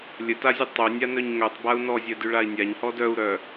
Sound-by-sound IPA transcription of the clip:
lʲ ə t a zʲ ə tˤ œ nʲ a n œ ɲ ŋ œ tˤ b a u̯ n ɔ zʲ œ d y ɭ a i̯ nʲ a ɲ h ɔ d œ u̯ ɾ œ

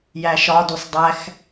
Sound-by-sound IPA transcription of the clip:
j æ ʃ ɒ d u sˤ dˤ æ x

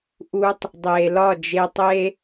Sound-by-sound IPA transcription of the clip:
ʔ u˧ tˤ | dˤ e˨ l ɒ˦˨ d͡ʒ e˧ tˤ e˦

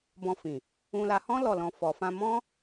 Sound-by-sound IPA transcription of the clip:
b ɔ̃˧ f ĩ˨ | ũ˧ l a˧ h ɔ̃˦ l ɔ˦˨ l ɔ̃˧ f ɔ˨ f ã˧ m ɔ̃˦

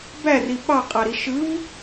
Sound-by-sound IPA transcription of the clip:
b æ r i ɓ ɑ qʼ ɑ ɾ i ʃ ɯ v

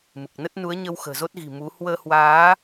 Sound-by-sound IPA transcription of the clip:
m ɨ˨˩ k̚ n ə˦˥ t̚ n u˨˦ ə̯ ɲ ə˧ w x ə̤ː˨˩ z o˦˥ t̚ ɣ i̤˨˩ m u˨˦ h w əː˧ h w aː˨˦

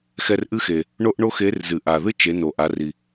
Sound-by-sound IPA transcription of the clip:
x ɛ˧ r ʔ ɨ˥ x e˩ | ɳ o˥ ʔ ɳ o˥ x e˧˥ r z ɨ˩ ʔ a˩ ð ɨ˥ t͡ʃ e˩˧ n o˩ ʔ a˩˧ r i˩

